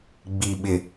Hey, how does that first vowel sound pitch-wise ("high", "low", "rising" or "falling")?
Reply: low